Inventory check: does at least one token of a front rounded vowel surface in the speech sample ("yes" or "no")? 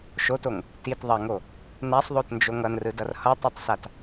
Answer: no